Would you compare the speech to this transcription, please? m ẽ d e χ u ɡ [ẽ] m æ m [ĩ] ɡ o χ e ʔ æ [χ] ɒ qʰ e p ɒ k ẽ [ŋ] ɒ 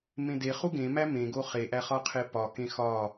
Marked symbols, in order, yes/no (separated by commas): yes, no, yes, no